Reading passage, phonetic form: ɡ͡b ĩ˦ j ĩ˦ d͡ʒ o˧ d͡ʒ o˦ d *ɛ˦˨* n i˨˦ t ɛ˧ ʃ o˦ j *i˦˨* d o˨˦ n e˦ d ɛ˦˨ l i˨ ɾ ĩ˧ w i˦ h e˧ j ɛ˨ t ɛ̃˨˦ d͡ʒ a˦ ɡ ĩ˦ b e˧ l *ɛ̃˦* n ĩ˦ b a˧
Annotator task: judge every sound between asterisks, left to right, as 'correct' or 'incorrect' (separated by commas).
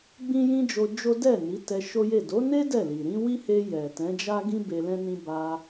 correct, incorrect, correct